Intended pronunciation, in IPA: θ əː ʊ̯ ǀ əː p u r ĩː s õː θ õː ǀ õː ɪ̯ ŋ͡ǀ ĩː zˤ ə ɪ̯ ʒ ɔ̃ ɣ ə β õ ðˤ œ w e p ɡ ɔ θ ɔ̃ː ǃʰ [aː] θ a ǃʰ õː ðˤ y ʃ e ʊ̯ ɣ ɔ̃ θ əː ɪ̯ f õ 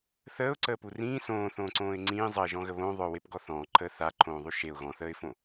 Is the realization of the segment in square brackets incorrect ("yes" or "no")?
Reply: yes